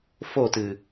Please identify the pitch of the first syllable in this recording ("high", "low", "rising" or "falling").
falling